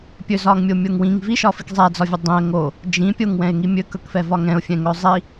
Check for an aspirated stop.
absent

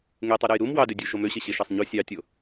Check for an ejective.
absent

